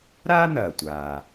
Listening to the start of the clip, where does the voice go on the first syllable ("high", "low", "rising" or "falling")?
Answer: high